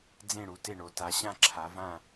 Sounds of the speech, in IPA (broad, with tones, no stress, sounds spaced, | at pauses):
d͡z ẽ˥˨ ɽ u˨˥ t e˥˨ ɳ o˨˥ t a˨˥ ɕ ã˥˨ ǁʰ a˨˥ v ã˥˨